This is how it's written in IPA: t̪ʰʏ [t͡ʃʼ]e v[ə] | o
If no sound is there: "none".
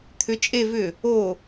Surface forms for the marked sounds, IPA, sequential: t͡ʃʼ, ʏ

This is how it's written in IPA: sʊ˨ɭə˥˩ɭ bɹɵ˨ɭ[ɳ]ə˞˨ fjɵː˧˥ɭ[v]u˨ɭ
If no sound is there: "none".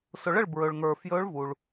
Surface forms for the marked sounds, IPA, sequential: ŋ, v

